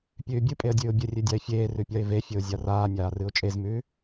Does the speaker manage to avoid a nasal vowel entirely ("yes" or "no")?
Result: yes